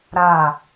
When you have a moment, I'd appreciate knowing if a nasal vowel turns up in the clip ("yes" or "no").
no